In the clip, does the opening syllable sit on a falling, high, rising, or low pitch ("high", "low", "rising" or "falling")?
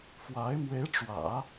rising